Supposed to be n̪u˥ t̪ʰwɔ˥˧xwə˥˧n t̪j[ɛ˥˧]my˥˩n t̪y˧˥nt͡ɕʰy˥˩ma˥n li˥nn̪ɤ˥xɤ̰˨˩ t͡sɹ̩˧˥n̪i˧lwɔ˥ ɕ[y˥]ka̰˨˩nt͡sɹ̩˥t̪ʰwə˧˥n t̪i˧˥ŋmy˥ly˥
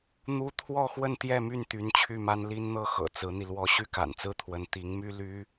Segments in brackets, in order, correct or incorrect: correct, correct

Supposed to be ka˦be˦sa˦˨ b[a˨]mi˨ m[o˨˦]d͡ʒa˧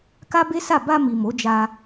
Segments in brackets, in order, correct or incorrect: incorrect: a˧, correct

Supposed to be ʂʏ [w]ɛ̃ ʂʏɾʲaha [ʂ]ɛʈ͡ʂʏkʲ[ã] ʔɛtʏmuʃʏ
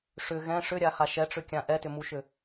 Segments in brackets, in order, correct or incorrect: incorrect: ɣ, incorrect: ʃ, correct

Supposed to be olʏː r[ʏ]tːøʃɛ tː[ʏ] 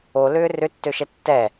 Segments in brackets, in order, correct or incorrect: correct, incorrect: ɛ

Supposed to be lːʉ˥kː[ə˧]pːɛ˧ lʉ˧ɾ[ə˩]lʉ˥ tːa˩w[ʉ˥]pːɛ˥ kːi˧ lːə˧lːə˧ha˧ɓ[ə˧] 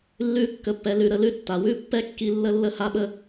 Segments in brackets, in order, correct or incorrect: correct, incorrect: ə˧, correct, correct

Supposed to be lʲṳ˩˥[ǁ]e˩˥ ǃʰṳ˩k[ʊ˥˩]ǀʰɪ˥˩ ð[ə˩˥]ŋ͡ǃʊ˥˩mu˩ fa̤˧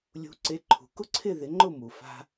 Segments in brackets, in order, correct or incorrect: incorrect: ǀ, incorrect: ʊ˥, incorrect: ɪ˩˥

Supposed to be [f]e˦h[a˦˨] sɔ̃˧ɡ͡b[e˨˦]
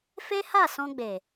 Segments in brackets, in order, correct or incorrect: correct, correct, incorrect: e˨

